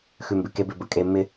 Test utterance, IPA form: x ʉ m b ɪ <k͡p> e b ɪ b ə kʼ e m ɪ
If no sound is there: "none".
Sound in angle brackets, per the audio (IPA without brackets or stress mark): k